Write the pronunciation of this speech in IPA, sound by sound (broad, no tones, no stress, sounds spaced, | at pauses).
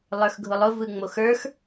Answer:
lˠ ə˞ x ɡʱ ʊ lˠ ʊ v ɯ ŋ͡m o x ə˞ x